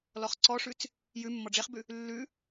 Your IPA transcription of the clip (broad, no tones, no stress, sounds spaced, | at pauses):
l ɔ χ ǀ ɔ ʂ ʉ t͡s | j ʉ mː ɔ ɖ͡ʐ e χ b ʉ | lː ʉ